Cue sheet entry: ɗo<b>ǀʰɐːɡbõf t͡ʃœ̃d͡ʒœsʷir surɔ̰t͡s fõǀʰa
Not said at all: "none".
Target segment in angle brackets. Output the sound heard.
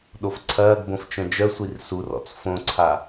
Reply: f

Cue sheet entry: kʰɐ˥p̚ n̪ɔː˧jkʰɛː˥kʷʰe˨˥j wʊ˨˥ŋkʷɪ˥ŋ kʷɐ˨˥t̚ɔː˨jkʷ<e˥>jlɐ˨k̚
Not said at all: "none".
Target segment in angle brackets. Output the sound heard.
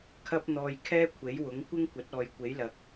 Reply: e˨˥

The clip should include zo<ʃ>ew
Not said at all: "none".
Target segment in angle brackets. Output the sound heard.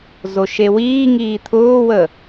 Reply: ʃ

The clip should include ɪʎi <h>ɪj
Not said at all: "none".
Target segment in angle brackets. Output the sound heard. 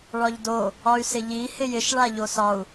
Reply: h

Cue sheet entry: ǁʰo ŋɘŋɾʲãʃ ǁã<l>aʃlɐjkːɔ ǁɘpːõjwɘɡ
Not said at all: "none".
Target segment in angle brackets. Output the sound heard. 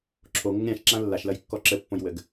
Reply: lː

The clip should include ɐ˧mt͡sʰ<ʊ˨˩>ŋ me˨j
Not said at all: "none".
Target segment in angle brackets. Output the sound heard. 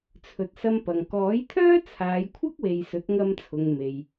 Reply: ʊ˨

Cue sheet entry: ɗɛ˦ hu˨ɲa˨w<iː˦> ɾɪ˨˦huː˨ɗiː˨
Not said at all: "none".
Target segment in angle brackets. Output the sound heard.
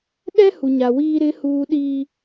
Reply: iː˦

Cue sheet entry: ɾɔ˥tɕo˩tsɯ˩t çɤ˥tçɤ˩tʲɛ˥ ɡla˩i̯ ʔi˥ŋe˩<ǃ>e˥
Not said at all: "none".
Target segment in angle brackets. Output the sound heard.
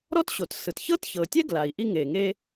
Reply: ŋ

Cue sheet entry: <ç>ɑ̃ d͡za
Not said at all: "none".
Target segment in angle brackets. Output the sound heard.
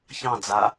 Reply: ç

